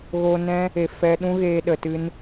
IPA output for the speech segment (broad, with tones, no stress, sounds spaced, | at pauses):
ɣ oː˧ n ɛ̃˦ | e˨ f ɛ˧ ɗ ũ˦ ɣ eː˧ ɗ ə˧ t ɨ˦ n